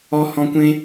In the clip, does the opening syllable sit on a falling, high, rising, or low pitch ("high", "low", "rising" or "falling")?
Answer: high